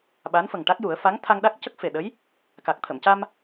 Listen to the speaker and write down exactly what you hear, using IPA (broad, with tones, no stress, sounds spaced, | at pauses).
ɓ a˧˥ n f ə˨˩ ŋ ʈ a˦˥ k̚ j u˨˩˦ ə̯ f a˧˥ ŋ t̪ʰ a˧ ŋ ɗ a˦˥ k̚ c ə˦˥ k̚ f e˨˩ ɗ ə˧˥ j | k a˨˩ k̚ t̪ʰ ə˨˩˨ m c a˧ m